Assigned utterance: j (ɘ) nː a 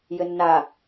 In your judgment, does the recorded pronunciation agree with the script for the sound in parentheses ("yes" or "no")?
yes